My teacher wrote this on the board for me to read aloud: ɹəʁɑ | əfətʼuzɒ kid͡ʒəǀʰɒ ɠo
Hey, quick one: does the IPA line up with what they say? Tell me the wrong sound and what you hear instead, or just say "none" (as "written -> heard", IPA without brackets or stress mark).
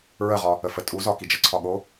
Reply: ɑ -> ɒ